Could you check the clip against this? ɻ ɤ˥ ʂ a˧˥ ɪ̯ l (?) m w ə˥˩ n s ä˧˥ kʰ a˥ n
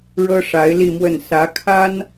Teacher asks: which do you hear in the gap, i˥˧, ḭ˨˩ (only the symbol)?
i˥˧